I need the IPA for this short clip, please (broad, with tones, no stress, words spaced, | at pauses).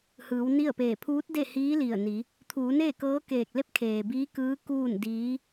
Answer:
hɯː˩˧w ni˥˨ə̯peː˧˩ pʰuː˧˥t̚de˥˨hiː˧˥ li˧˩ə̯ni˩˧ | t̪ʰuː˩˧ne˥˨kɤː˧˥keː˧˩k̚ le˧˥p̚kʰeː˩ biː˧˥kɯː˧˥ kuː˥˨ndiː˧˥